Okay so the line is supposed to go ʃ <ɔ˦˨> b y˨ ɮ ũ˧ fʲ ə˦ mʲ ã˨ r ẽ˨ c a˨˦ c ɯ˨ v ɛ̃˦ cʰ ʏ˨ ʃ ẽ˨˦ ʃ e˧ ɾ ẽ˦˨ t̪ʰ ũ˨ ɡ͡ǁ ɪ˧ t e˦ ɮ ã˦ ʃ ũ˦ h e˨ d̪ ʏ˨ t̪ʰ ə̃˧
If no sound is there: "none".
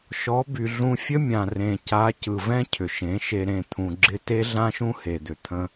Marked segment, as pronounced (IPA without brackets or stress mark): ɔ˨˦